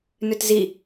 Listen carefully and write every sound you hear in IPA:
n ø t z i

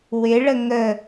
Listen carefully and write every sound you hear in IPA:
w ɪ ɭ ə ŋ ə

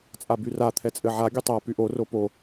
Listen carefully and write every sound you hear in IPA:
t͡sʼ a b y r a t̪ʰ ɛ t͡sʼ ɘ ʕ a ɡʲ ɘ tˤ a p y ʔ o r o p o

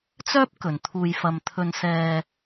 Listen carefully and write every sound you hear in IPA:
t͡s œː˥ p̚ k ɵ˨ n t̪ʰ uː˧ j f ɐ˧ m t̪ʰ ɵ˧ n s ɛː˧

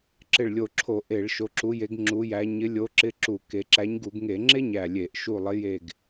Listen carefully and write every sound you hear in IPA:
ǁ ɪ˧˩ ɭ lʲ o˧˩ ǁʰ o˧˩˧ ʔ e˧˩˧ ɭ ʃ o˨˦ ǁ u˨˦ j e˨˦ ɡ ŋ͡ǁ u˨˦ j æ˨˦ ɲ ɪ˨˦ lʲ o˨˦ ǁ ɪ˧˥˧ ǁ u˧˩˧ k e˨˦ ǁ æ˨˦ ɲ ɡ u˧˩˧ ɡ ŋ e˧˩˧ ŋ͡ǁ e˥ ɲ æ˧˩ lʲ e˧˩˧ ʔ ʃ u˧˩ lˠ ɪ˨˦ j e˧˩ ɡ

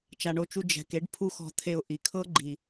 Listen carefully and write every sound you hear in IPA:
t͡ʃ a˨ ɳ o˧ t͡ʃ u˧ d͡ʒ ɛ̤˨ k e˨˦ ɖ pʰ u˦ x ɔ̤˧ t̪ʰ e˧ ʊ̯ ʔ i˨ kʰ ɤ˦ ɡ͡ǃ i˨

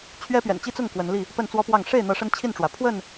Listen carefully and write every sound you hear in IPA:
t͡ɕʰ ɥ ɛ˦ p ɥ ɛ̰˨˩ n t͡ɕ i˦ t͡s ʊ˥˨ ŋ k w ə˨˦ n l i˥˨ | p ə˥˨ n t͡s w ɔ˦ p w ɑ˥˨ ŋ ʂ e˥˨ ɪ̯ n̪ ɤ˨˦ ʂ ə˦ n t͡ɕʰ i˥˨ n ʈ͡ʂ w ä˩ pʰ w ə˥˨ n

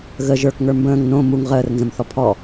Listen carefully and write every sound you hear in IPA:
ɣ ə ʒ ə˞ k ŋ ə˞ m b ə̃ː ŋ n õ m u ŋ ʁ əː r n z ə̃ m θ ɔ pʰ ɔ

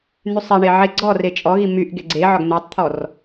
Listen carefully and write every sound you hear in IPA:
n̪ y sˤ e ɳ e ʕ e ɡ͡ǀ ɔ r e t͡ʃʼ ɔ ɣ i m y ʔ ɡ e ɡ͡ǀ e ʕ ɒ ɡ n̪ e tˤ t̪ʰ ɔ r

